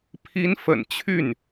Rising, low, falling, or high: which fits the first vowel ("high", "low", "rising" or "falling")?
rising